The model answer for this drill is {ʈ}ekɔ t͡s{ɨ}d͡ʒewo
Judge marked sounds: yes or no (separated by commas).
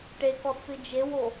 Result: yes, yes